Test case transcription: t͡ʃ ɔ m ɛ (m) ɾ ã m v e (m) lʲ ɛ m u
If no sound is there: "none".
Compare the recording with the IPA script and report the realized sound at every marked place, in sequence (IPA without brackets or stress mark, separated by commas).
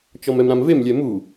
m, m